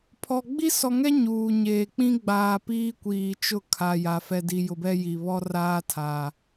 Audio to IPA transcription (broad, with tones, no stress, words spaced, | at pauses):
pʰɔ˨ ɡ͡bi˦sɔ˨ŋɛ˦ ɲuː˨ɲeː˨ k͡pĩ˦ɡ͡baː˨ piː˦kʷiː˨t͡ʃʊ˦˨ kʰa˨ja˨ fɛ˨di˨jʊ˨bɛ˦ ji˨ βɔ˦raː˦ tʰa˨